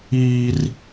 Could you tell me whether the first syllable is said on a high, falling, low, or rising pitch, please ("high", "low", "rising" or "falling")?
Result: high